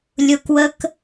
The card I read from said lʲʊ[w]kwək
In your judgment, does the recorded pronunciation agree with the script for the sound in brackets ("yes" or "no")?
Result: no